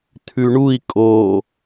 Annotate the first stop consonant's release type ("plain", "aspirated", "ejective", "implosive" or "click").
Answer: aspirated